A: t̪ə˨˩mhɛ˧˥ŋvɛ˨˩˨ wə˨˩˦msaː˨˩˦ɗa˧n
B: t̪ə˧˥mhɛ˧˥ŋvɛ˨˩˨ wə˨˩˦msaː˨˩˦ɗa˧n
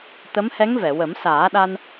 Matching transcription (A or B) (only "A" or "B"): B